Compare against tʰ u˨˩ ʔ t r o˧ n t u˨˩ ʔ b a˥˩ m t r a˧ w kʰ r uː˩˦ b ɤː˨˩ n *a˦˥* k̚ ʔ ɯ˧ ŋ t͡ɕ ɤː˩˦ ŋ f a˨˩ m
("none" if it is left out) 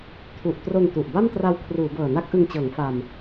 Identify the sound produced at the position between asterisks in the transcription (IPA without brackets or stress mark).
a˦˥